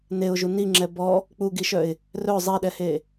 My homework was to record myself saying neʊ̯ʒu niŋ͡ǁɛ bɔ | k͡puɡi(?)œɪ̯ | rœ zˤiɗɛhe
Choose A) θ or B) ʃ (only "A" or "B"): B